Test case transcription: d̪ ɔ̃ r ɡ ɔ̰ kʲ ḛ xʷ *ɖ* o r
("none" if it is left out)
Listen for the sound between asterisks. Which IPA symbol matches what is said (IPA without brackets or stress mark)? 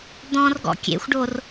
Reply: ɖ